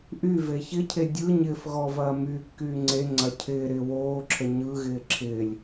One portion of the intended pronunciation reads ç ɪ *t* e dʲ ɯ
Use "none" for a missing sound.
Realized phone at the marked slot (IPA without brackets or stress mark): cʰ